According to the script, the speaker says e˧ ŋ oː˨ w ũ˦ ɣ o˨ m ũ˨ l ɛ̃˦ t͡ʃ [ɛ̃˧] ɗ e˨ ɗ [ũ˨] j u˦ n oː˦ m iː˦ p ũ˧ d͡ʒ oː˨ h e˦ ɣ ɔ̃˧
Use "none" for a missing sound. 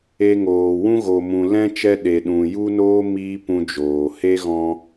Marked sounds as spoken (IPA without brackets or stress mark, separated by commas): ɛ˧, ũ˨